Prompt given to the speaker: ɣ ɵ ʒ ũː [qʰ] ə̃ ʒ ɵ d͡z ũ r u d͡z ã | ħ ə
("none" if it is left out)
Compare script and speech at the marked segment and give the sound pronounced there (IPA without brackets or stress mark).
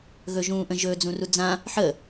ʔ